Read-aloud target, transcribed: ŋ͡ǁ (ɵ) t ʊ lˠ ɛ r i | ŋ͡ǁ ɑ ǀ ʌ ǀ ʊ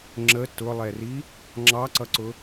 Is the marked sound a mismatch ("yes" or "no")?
yes